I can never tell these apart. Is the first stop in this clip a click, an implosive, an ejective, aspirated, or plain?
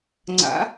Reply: click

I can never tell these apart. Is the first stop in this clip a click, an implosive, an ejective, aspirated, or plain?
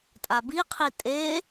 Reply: ejective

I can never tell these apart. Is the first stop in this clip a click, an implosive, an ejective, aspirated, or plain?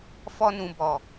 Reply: plain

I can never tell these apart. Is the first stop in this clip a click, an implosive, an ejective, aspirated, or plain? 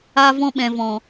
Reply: implosive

